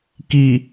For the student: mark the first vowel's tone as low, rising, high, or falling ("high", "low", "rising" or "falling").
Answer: low